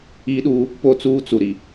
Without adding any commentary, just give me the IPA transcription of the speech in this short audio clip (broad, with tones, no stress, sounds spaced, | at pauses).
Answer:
i˦ ɗ uː˦ | p o˦˨ t͡s uː˦ t͡s u˨ ɾ i˨